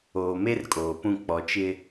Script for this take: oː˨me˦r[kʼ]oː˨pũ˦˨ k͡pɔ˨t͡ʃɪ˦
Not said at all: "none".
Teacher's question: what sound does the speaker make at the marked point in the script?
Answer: kʼ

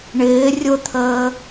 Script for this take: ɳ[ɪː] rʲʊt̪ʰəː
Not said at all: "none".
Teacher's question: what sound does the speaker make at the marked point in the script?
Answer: ɪː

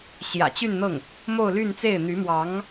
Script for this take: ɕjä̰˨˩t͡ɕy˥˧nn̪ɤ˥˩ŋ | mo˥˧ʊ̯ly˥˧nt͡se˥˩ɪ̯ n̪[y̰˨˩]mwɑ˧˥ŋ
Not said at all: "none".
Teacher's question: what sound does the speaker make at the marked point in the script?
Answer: y˧˥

